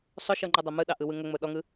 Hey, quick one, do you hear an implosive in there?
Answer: yes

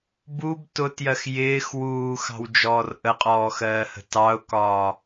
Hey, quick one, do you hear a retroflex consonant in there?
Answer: no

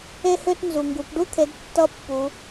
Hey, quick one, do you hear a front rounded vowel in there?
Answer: yes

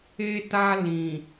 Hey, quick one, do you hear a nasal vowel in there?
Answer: yes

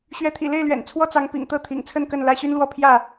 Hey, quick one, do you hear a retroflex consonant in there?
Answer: no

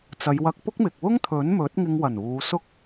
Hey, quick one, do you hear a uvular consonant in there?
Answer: no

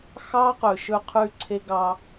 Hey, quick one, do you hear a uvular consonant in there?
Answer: yes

